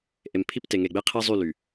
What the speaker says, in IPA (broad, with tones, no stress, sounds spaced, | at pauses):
ʔ e˨ m pʰ i˦ p t e˨ ŋ e˨ ɡ͡b e˦ qʰ i˦ zˤ y˦˨ l y˨